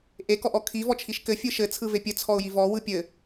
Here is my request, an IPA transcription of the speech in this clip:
ʔekɔʔɔ kʰivɔt͡ʃʰiʃ kɘfʲɯ ʃɘt͡sʰɯve pʲɘt͡sʰɔʊ̯ji vɔwɯ pʲɘ

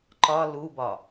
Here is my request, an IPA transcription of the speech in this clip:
ǃɒ lubɒ

